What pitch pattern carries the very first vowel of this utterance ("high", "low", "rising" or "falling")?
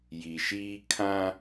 low